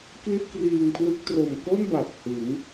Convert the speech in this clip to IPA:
kli˥˩t̚kriː˧ŋpʰlɯ˦˥k̚ tro˨˩mko˥˩n ba˨˩p̚hɯ˩˦ŋ

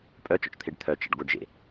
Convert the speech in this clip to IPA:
pʼœt͡ʃɔ̰t͡ʃt̪ʰeɖ t̪ʰœt͡ʃə̰ɖ ɡʷœɖʒḛ

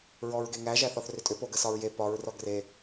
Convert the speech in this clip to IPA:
ɹɔɹɡeŋæ ʒæθɔθrʏtʼʏ poɡəsɒɹje pɒɹ rɔɡre

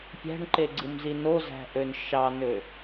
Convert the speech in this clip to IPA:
pʲæ̤ɳǃeɡ͡ǀɯmzi nozæ̤ʔøn ʃɑnø

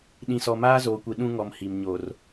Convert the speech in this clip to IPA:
ɗĩ˦sɔ˦ maː˦zoː˨kʷi˨ ɗũ˦ŋɔ˨m hi˨mɲo˨r

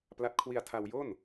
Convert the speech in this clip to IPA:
pla˦˥t̚ kʰwi˧a̯tʰa˧wjo˥˩n

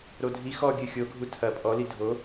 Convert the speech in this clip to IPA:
ɾodʱi xɔ ɡʲɨxʲo ɡʱutʰɐ pʼɔ lidʱo

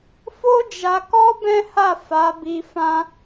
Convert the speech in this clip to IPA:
fo˦d͡ʒa˧kɔ˦ bɛ̃˦ha˦˨ fa˨˦bi˧ fã˦

